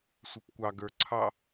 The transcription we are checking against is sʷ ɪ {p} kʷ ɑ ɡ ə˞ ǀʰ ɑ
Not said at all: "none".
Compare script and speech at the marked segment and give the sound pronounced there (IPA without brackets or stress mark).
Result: p